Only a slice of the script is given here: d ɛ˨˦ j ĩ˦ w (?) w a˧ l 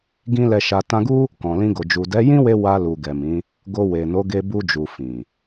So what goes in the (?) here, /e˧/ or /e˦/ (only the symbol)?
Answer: e˧